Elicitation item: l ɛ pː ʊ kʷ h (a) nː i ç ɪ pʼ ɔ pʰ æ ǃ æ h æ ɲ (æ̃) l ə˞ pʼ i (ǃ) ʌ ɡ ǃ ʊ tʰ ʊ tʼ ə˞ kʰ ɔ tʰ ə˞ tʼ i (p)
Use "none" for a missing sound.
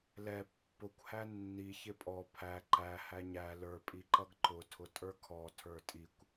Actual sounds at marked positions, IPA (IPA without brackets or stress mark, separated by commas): æ, æ, ǃ, kʷ